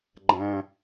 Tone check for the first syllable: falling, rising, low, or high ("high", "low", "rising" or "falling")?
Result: low